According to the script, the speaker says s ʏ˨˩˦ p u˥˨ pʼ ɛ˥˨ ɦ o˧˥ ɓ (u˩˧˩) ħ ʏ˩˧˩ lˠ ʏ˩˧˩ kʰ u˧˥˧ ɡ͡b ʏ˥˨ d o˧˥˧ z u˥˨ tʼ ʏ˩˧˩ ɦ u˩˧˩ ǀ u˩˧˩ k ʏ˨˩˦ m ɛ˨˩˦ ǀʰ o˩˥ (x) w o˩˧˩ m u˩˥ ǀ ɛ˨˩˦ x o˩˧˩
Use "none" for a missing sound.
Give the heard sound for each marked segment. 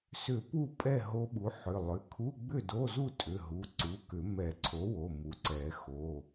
u˩˥, none

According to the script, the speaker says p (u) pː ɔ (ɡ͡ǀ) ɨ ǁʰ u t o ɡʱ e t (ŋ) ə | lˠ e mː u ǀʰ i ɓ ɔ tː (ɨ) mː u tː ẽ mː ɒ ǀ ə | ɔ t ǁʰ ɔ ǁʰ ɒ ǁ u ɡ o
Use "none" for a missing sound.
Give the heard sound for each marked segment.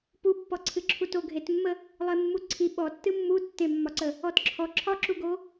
u, ǀʰ, mː, ɨ

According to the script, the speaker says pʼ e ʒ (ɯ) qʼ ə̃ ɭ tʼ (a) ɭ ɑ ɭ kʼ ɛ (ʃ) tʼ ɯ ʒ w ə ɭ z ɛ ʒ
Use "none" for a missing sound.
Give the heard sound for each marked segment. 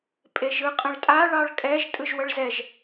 ɯ, a, ʒ

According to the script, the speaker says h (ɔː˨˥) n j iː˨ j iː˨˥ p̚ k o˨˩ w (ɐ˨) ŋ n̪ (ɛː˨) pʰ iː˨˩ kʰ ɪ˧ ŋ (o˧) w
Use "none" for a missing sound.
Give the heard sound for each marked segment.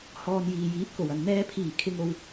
ɔː˨, ɐ˨, ɛː˧, o˧

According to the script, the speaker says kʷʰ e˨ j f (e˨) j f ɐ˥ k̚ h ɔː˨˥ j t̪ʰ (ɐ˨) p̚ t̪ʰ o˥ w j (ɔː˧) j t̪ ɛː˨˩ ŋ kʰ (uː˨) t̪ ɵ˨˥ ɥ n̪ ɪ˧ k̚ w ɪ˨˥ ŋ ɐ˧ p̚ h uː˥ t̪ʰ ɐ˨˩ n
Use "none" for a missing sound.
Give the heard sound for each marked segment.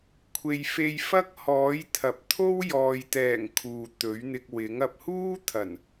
e˧, ɐ˨, ɔː˧, uː˨

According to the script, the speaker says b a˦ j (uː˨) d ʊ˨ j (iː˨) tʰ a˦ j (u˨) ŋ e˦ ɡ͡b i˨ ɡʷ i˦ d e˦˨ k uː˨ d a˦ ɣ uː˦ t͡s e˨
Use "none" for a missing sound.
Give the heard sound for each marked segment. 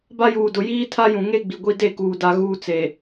uː˨, iː˦, ũ˨

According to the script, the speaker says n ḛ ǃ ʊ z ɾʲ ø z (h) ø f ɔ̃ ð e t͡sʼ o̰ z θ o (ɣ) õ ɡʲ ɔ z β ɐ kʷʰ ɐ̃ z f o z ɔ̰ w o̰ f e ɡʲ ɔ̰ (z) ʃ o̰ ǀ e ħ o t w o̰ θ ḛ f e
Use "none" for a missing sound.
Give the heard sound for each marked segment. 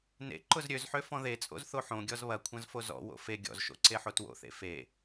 ħ, ħ, z

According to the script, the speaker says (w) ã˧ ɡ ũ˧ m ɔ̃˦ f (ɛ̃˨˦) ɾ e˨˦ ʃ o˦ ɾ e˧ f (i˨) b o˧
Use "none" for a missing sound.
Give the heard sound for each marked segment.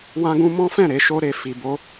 w, ɛ̃˦˨, i˨

